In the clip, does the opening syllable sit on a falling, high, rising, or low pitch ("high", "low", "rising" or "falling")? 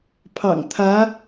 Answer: low